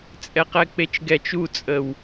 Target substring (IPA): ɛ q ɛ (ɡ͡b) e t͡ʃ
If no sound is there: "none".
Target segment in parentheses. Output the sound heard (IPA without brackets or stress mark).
k͡p